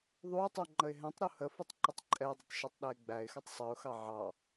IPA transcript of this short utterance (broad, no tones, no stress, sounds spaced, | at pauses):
ðˤ u ɪ̯ tˤ u ŋ͡ǃ ə ɪ̯ ɦ ɛ̃ tˤ ɾ u h ə f u tˤ ǃ ə tˤ ǃʼ ɛ ɪ̯ dˤ ʊ tˤ ʃ ɛ tˤ ɗ æ ɪ̯ ɡ͡b æ ɪ̯ x ʌ tˤ sˤ ʌ ʊ̯ x ɑ ʕ ɑ